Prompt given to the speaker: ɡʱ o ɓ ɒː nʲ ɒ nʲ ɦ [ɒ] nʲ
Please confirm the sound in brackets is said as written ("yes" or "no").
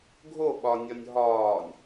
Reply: no